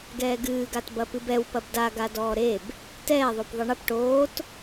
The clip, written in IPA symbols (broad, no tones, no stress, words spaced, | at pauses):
ɡɛːɡɨːɡat bɐpɨbɛw pɐbda ɡadɔːɾeb | tɛːðˤop ðˤɨɳɐp ʈoːt